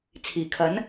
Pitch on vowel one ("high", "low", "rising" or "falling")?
low